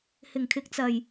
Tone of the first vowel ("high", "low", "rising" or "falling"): low